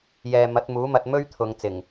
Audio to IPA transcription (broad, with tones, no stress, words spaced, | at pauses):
jɛː˨ mɐ˨˥t̚muː˨˥mɐ˧t̚ mɵ˥ɥt̪ʰʊ˨˧ŋ t͡sɪ˨˩ŋ